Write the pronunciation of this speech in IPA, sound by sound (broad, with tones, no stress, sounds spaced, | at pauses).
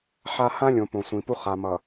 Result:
ħ a˦ h ã˦ lʲ õ˨ p õ˨ sʷ ĩ˨ p u˦ χ a˨ m ʌ˨